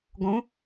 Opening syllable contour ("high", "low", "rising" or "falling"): rising